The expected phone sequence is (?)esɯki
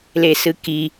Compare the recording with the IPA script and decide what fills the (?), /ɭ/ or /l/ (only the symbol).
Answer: l